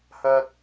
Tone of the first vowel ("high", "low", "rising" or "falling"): high